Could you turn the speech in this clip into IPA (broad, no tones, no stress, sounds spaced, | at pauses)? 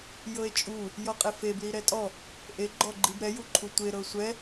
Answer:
j ɤ e̯ t͡ʃʼ u | j ɔ qʼ e f e b l i ɾ ɛ tʼ ɔ | ʔ e ɡ͡ǃ ɔ ɡ͡ǃ i b ɾ ɛ j u ǃʰ u tʷ e ɾ ɤ sʷ ɛ